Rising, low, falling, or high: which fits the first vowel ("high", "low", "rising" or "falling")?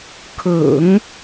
low